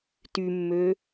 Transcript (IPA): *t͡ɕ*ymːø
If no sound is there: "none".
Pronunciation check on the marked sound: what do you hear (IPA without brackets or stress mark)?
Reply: t